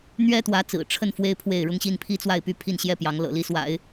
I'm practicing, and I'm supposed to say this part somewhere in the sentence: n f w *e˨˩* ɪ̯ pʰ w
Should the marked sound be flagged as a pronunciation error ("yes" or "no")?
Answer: yes